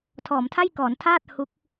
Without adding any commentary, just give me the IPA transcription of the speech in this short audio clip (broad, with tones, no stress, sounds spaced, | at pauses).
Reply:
tʰ ɔː˩˦ m tʰ a˥˩ j k ɔː˩˦ n tʰ aː˥˩ t̚ h u˦˥ k̚